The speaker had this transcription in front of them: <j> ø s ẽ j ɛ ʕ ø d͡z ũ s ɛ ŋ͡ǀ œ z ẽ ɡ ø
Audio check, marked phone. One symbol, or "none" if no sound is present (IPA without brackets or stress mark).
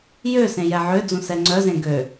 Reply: j